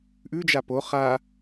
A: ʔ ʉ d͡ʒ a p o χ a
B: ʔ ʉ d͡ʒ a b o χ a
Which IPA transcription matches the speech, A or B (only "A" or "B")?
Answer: A